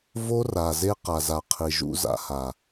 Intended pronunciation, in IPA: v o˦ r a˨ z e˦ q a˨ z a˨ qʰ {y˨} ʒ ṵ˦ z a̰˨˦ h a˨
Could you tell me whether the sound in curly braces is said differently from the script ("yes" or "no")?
yes